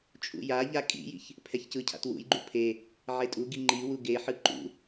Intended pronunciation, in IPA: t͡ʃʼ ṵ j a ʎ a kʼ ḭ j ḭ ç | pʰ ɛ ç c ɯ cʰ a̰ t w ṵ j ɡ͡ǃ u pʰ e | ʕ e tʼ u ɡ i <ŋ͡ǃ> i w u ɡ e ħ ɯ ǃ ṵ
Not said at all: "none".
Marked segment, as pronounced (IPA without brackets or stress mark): ŋ͡ǃ